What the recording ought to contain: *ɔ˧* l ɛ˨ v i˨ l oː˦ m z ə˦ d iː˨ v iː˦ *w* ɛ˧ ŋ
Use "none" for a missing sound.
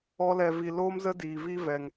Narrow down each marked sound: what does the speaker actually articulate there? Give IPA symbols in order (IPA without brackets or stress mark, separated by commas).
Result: ɔ˧, v